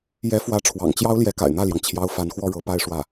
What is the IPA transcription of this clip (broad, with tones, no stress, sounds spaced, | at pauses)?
j ɛ˧˥ f w ä˧˥ ʈ͡ʂʰ w ɑ̰˨˩ ŋ t͡ɕ j ɑ˥ ʊ̯ l j ɛ˧˥ k a̰˨˩ ɪ̯ n̪ ä˥˩ l j ɑ˩ ŋ t͡ɕʰ j ɑ˧˥ ʊ̯ f a˧˥ n x w ɔ˥ ɻ ɤ˧˥ p a˥˧ ɪ̯ ʂ w ä˥˩